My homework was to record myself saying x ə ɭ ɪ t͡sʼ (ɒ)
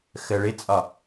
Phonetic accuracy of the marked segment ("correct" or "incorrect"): correct